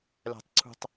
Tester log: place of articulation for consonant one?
alveolar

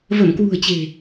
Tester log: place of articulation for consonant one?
labial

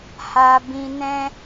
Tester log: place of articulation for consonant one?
glottal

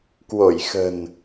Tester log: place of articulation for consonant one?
velar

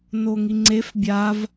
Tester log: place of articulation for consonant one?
alveolar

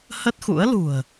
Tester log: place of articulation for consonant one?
glottal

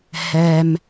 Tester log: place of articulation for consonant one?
glottal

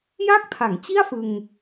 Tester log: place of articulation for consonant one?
palatal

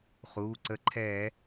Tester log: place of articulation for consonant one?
uvular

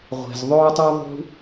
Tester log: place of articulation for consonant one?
uvular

